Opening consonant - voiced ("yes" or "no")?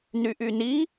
yes